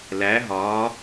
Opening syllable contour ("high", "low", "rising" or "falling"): rising